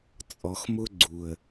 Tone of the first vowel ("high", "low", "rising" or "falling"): low